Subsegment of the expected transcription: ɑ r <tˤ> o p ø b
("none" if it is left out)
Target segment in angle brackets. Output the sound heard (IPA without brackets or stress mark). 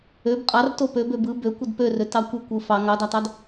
t